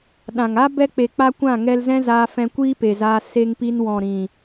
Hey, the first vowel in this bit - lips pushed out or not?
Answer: no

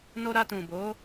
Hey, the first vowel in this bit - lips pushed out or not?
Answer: yes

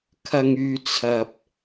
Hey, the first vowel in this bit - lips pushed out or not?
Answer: no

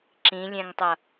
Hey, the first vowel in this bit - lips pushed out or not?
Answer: no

